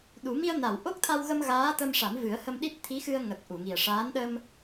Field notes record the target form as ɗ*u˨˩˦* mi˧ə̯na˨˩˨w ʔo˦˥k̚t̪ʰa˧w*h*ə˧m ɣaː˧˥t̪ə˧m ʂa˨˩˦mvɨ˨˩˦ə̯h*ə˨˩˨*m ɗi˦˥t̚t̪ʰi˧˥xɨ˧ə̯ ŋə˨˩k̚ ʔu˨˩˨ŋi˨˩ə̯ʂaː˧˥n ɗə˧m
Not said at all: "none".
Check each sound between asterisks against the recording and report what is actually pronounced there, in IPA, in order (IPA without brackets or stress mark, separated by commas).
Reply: u˨˩˦, ɣ, ə˧